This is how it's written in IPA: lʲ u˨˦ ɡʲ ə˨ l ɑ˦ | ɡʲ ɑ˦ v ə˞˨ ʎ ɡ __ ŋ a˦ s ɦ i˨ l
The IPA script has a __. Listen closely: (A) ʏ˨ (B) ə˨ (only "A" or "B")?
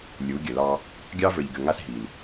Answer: A